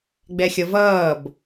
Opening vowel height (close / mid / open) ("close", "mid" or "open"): mid